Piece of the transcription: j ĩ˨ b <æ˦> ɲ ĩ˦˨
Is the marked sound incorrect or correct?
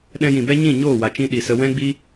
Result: incorrect